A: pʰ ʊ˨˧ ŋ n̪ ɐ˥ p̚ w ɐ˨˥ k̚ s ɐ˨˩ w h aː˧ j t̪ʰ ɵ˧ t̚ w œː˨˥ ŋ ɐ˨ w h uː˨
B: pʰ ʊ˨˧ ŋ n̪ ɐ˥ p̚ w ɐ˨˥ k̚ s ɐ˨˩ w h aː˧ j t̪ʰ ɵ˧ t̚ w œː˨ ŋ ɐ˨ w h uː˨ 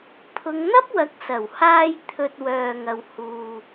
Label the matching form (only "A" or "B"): B